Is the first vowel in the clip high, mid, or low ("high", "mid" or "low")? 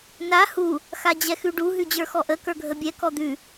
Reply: low